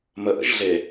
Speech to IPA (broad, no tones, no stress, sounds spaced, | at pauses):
m ə ʔ ə̰ ʒ ɮ e